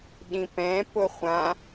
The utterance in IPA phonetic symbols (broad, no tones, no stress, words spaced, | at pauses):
ɗĩpɛ̃ pʊχʷã